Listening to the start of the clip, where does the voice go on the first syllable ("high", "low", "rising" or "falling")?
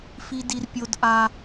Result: high